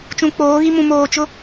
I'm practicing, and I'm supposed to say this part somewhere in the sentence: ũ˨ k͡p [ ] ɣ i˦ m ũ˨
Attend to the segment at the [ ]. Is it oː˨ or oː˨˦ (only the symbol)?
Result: oː˨˦